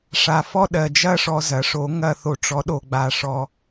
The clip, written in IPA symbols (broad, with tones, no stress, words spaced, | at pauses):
ʂa˨fɔ˥˧ ɗɜ˨d͡ʒɐ˥˧ʂɔ˨ zɐ˩˥ʂo˩˥ŋɐ˥˧ θo˨ʈ͡ʂɔ˩˥ ɗo˨ɡ͡ba˨ ʂɔ˨